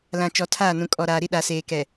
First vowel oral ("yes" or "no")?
no